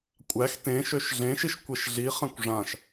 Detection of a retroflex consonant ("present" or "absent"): present